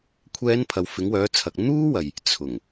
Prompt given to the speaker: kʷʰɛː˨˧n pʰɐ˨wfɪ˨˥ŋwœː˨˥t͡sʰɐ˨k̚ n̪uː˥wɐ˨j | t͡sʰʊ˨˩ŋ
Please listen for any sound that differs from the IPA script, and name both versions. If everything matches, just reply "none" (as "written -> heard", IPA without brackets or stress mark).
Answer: none